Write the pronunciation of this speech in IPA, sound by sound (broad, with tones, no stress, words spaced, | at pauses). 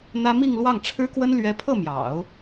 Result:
n̪ä˥ mi˥˧ŋlwɑ˥˩ŋʈ͡ʂʰɻ̩˥kwə˥n lɥɛ˥ pʰɤ˥˩mjɑ̰˨˩˦ʊ̯